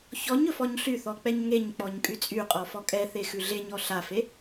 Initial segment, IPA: ç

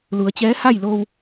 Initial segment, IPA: l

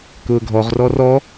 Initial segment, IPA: k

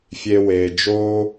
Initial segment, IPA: fʲ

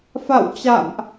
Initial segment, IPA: f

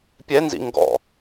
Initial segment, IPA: pʲ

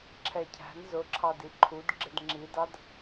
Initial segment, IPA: ǁʰ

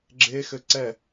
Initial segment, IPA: ɡ͡ǁ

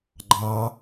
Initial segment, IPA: ɡ͡ǃ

